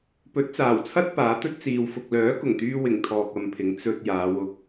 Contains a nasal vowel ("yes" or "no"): no